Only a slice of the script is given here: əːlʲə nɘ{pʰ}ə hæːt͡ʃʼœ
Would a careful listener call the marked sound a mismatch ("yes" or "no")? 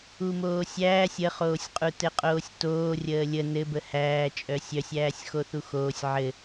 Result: yes